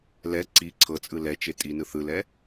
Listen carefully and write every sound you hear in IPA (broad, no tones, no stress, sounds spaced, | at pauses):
l ɛ ǀ i ǀʰ ɤ t͡sʼ ɯ l ɛ t͡ʃ e tʼ i n ɯ θ ɯ l ɛ